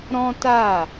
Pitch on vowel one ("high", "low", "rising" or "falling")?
high